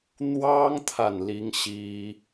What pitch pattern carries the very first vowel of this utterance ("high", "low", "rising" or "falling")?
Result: high